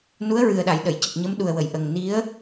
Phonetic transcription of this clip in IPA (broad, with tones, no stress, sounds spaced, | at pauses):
n u˧˥ ə̯ ɹ ɨ˨˩ ə̯ ɗ a˨˩˨ j ɗ ə˨˩˨ j c ə˨˩ k̚ ɲ ə˧˥ m ɗ u˨˩ ə̯ w ə˨˩˨ j ʔ ə˨˩ ŋ n i˧˥ ə̯